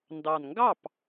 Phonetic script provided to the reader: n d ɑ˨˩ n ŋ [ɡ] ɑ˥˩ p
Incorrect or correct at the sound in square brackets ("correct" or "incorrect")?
correct